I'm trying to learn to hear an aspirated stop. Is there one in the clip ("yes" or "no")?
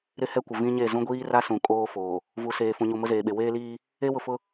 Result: no